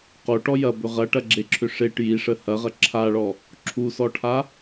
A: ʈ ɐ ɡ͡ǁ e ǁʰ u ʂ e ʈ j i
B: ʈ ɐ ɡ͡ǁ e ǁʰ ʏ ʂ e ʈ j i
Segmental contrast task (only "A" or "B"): B